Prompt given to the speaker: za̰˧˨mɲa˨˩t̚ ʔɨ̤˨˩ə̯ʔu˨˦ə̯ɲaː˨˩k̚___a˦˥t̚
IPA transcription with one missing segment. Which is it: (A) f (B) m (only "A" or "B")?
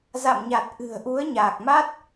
B